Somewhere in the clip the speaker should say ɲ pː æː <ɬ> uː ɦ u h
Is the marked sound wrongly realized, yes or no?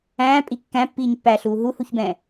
no